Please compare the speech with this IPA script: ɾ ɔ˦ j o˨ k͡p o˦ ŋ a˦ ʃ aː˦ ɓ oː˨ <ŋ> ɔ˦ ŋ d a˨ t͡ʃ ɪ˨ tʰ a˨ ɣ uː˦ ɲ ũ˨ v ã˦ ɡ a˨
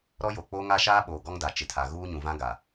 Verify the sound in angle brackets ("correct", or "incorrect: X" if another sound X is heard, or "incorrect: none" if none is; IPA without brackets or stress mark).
incorrect: ɡ